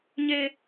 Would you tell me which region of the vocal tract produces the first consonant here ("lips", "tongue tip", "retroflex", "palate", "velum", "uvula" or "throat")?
palate